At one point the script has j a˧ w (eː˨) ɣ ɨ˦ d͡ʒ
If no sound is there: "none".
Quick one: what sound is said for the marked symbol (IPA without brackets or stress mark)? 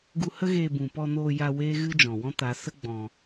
eː˦